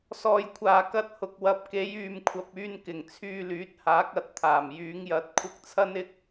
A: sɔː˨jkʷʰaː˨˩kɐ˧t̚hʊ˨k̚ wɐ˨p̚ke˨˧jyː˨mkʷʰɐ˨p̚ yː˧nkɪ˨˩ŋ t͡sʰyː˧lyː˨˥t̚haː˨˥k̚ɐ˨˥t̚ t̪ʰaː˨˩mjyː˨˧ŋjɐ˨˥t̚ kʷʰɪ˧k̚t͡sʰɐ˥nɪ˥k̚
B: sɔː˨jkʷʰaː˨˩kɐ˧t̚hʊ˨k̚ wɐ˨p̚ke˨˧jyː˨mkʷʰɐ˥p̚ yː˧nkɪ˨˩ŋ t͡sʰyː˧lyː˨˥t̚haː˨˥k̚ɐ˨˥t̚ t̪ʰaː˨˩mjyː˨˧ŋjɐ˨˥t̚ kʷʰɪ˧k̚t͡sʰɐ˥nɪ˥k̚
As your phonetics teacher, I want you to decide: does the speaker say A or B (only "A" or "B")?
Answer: A